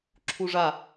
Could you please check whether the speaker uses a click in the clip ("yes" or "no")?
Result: yes